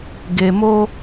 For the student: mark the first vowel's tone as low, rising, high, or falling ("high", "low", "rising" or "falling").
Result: low